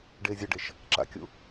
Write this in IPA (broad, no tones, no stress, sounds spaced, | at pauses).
ɖ eː zʲ ɐ ɖ e ʃ | ǁ a̰ kʲ ṵ